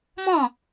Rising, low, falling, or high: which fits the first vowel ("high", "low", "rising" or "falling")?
falling